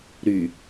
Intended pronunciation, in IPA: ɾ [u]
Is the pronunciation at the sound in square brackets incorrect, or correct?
incorrect